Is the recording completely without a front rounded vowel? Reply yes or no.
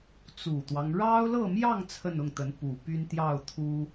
no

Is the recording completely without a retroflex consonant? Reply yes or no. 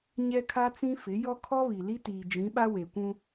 yes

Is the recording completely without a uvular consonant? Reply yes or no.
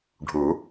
yes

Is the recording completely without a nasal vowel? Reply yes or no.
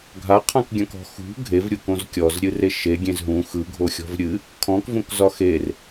no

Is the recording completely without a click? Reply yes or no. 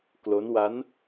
yes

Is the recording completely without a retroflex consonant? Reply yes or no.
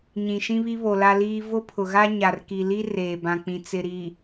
yes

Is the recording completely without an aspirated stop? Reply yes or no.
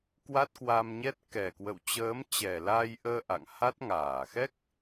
yes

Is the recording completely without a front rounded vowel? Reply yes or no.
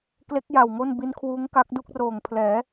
yes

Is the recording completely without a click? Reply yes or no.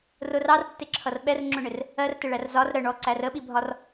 no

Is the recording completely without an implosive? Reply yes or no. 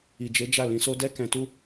yes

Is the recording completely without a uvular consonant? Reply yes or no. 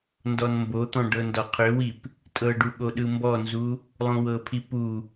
no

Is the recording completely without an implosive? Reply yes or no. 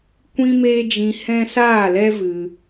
yes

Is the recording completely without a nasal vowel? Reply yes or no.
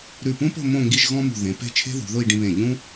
no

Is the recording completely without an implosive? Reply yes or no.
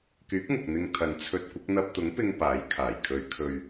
yes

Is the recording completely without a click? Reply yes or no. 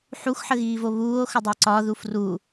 no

